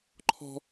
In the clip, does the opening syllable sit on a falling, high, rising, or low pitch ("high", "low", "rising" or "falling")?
high